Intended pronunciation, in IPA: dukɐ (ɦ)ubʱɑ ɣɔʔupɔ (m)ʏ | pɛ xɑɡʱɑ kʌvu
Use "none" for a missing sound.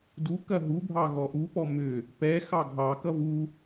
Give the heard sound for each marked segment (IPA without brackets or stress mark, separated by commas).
ɦ, m